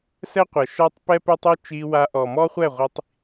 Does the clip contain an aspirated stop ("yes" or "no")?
no